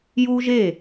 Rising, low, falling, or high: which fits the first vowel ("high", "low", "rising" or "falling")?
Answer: high